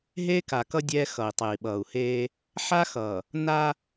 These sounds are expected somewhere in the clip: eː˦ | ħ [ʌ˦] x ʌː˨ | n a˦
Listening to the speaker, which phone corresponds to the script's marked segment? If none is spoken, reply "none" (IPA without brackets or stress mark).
a˦